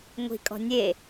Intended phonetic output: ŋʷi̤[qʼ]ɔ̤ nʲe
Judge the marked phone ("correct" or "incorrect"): incorrect